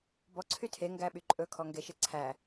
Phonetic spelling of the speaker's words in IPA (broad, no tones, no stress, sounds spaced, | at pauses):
b ɔ ǀʰ y tʰ e ŋ ɡ æ ɓ y ǃʼ ɵ kʰ ɔ ŋ ɡ e ʃ e ǀʰ æ